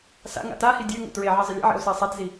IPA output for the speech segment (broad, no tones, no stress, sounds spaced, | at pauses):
s a̰ ŋ a̰ t a h i dʲ ø ŋ ṵ t ɹ e ʕ ɛ zˤ ə lʲ a̰ ʕ ḛ o̯ s ɛ sˤ a t z i